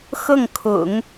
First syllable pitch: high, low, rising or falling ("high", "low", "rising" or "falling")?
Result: falling